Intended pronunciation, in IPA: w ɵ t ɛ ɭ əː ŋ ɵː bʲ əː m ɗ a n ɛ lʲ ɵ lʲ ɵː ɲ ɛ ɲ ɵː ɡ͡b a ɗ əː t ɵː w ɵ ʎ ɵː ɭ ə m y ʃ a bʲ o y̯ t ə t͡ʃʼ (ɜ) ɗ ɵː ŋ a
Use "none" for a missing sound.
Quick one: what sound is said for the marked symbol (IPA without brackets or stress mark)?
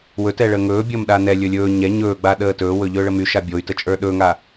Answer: ə˞